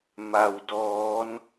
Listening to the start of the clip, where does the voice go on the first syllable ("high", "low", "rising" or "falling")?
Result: low